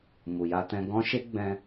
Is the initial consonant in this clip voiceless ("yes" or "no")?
no